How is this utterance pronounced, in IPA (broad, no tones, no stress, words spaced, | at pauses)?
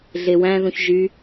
ɮewæ̃ðũç ʒy